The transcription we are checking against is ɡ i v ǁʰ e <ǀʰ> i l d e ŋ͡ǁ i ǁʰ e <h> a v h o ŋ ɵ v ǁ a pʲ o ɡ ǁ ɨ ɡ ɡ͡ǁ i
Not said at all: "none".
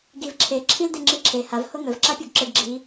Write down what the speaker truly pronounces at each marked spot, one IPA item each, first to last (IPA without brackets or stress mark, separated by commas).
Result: ǁʰ, h